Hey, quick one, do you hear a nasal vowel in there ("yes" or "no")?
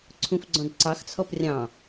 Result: yes